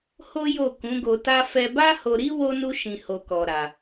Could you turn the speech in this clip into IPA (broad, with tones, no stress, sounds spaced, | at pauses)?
h o˦ j o˦˨ k ũ˨˦ ɡ o˧ t a˦ f ɛ˧ b a˦ h o˧ ɾ i˦ w o˦ n u˦ ʃ ĩ˧ h o˧ k ɔ˧ ɾ a˧